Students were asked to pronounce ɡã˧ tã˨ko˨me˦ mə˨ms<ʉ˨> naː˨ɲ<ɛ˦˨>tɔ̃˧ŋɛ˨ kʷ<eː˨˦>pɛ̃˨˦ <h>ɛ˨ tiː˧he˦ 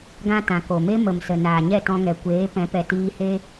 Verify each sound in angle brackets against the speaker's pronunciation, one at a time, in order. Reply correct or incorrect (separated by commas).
incorrect, correct, correct, incorrect